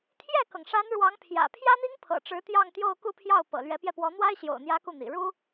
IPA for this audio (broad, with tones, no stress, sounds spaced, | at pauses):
t̪ʰ j ɛ˥˩ k ɤ˩ ŋ ʂ a˧˥ n ɻ w ɑ˧˥ ŋ pʰ j ä̰˨˩ pʰ j ä˥ n̪ i˥ ŋ pʰ ɤ̰˨˩ ʈ͡ʂ ɻ̩˧˥ t̪ j ɑ˥˧ ŋ t̪ j o˥˧ ʊ̯ k u˥˧ pʰ j ɑ˥˩ ʊ̯ p ɤ̰˨˩ l ɥ ɛ˧˥ p j ɛ˧ p w ɔ˧˥ n̪ w a˥ ɪ̯ ɕ j o̰˨˩ ʊ̯ n̪ j ä˧˥ k u˥˩ n̪ ḭ˨˩ ɻ u˥